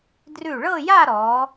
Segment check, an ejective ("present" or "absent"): absent